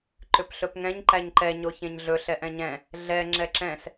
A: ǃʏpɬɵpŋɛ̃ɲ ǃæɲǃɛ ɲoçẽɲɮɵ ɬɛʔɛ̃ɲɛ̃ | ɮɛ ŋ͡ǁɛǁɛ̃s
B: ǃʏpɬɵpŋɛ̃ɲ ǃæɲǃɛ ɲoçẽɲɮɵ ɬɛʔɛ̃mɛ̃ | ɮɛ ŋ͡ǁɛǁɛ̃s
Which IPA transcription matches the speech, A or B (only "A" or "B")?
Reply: A